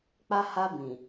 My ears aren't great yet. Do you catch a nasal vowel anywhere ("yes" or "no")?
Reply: yes